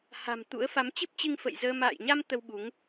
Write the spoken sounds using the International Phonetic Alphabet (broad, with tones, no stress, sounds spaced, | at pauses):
h a̤˨˩ m t̪ ṵ˧˥ ə̯ f a˨˦ m t͡ɕ ɨ˦˥ p̚ t͡ɕ ɨ˧ ŋ f ə̰˧˨ j z əː˧ m a̰ː˧˨ j ɲ a˧ m t̪ ə˧ w ɓ u˨˦ ŋ